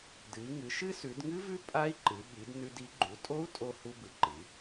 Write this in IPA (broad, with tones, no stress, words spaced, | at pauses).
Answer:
dɨ˩˧i̯ŋɨ˩˧ ʃɨ˦˥sʉ˩˧dŋɨ˦˥vʉ˦˥ pʼa˦˥i̯ǃɨ˩˧ ɓi˩˧dnʉ˧d i˩˧ɡ͡ǃu˩˧tʼo˦˥u̯ tʼo˧ hu˧bɨ˩˧ ǃɨ˩˧